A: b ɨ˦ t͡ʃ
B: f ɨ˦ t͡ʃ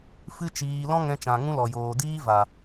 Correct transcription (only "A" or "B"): B